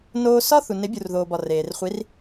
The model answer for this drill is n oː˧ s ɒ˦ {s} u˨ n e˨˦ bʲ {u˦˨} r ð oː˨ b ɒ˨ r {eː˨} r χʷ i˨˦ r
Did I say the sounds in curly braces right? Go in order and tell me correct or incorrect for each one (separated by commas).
incorrect, incorrect, correct